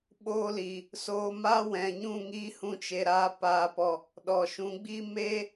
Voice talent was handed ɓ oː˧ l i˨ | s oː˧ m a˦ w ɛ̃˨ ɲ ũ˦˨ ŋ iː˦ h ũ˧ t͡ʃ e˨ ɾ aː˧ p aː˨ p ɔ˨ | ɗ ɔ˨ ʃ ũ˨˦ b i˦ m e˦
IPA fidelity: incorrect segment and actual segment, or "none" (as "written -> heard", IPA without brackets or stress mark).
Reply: b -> ɡ͡b